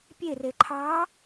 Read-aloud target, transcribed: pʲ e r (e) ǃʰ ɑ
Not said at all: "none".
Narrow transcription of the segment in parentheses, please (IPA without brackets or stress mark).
e